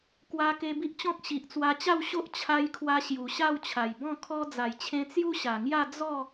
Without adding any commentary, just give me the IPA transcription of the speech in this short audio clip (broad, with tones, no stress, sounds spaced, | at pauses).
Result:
k w a˧ k e˧ b i˦ ʔ t͡ɕ ɔ̃˦ k̚ ɕ i˨ ʔ t͡s w a˧ t͡ɕ a˥˧ w ɕ o˦ ʔ t͡ɕʰ a˧ j kʰ w a˧ ɕ j u˨˩ ɕ a˥˧ w t͡ɕʰ a˨˩ j b ɔ̃˥˧ kʰ ɔ˧ d͡z a˨˩ j t͡ɕʰ ẽ˧ t͡s j u˦ ɕ a˨˩ ŋ j a˥˧ d͡z ɔ˥˧